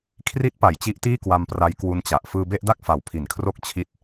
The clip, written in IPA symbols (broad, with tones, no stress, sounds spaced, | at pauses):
kʰ r i˦˥ t̚ p a˩˦ j t͡ɕ i˦˥ ʔ t iː˥˩ k w a˧ m p r a˦˥ j k w u˦˥ n t͡ɕ a˨˩ ʔ f ɯː˧ b e˥˩ ʔ d a˥˩ k̚ f a˨˩ w pʰ i˨˩ n kʰ r o˦˥ k̚ t͡ɕʰ i˦˥ t̚